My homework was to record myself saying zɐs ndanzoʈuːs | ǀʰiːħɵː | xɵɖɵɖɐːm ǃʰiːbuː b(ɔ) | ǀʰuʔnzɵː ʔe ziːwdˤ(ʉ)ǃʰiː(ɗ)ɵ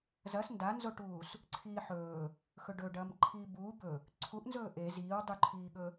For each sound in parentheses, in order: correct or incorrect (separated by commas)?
incorrect, correct, incorrect